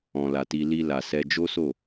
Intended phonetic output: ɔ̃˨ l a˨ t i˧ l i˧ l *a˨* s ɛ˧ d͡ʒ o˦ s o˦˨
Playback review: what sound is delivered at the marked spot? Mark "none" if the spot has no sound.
a˨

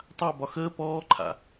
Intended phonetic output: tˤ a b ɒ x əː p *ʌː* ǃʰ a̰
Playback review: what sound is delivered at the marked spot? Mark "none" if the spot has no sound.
ɔː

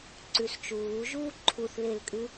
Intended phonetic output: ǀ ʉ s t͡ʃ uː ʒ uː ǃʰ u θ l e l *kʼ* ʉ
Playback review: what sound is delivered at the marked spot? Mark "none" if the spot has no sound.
kʼ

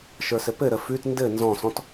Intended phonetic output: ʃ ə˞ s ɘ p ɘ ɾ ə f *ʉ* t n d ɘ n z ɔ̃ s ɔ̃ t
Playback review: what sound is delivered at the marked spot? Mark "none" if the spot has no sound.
ʉ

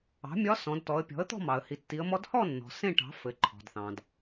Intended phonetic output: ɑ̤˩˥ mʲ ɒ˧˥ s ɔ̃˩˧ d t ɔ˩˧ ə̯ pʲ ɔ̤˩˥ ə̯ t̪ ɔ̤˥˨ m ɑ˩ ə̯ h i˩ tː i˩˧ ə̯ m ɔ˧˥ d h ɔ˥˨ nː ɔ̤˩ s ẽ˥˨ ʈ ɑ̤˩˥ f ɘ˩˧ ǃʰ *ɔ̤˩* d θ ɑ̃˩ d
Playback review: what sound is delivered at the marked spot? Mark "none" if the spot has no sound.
ɔ̤˩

